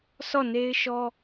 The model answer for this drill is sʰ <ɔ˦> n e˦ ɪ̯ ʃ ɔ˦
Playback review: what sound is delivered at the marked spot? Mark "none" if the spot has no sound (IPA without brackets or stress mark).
ɔ˦˨